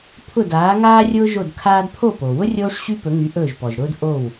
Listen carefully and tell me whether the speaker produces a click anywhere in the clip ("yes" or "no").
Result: no